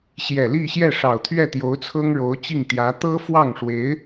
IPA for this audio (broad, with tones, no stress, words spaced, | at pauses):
ɕjɛ˨˩li˥˧ɕjɛ˥˩ ʂɑ˨˩ʊ̯t̪ʰɥɛ˥˩t̪jo˧˥ʊ̯ t͡sʰɤ˥ŋɻo˧˥ʊ̯t͡ɕi˥˩ŋt̪jä˧˥ t̪ɤ˥fwɑ˥˩ŋʂwe˧˥ɪ̯